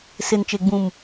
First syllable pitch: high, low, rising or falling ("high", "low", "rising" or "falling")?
low